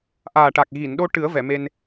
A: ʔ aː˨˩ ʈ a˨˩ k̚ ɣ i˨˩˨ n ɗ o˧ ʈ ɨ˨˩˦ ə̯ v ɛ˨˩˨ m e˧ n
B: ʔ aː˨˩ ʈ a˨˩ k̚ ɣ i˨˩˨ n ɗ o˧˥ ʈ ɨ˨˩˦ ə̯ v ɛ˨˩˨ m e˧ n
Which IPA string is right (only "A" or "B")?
A